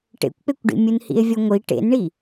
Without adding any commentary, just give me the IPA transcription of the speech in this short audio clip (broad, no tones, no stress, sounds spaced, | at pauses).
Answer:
ʈ ḛ kʷ k͡p e kʷ ɖ ḭ mʲ u n h ḭ e̯ vʲ ɔ ŋʷ i ʈ ḛ n ɳ i